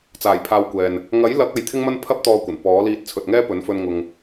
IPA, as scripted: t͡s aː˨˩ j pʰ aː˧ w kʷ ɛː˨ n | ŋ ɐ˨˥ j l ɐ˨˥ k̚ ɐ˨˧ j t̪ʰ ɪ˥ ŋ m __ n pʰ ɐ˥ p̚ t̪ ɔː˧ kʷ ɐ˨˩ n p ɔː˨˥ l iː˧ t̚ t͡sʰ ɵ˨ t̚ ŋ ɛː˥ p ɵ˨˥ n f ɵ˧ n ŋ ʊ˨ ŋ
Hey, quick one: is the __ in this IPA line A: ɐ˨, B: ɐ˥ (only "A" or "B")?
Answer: B